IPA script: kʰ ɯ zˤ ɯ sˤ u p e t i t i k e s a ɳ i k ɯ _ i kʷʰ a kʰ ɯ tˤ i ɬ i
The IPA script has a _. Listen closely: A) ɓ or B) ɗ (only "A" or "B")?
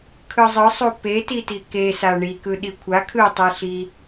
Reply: B